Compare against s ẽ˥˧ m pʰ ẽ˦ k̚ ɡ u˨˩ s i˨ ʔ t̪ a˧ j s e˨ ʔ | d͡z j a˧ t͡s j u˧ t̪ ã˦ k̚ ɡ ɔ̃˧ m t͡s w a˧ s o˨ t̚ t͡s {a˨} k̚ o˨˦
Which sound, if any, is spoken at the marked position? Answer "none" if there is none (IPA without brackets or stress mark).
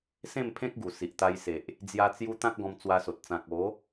ã˨